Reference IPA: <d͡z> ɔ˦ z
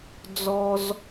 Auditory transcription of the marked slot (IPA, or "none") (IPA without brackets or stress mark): d͡z